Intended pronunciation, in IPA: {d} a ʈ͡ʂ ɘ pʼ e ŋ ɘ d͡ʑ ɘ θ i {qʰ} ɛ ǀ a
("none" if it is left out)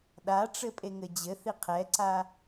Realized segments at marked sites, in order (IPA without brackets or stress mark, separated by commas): ɗ, qʰ